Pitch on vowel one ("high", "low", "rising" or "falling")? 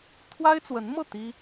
high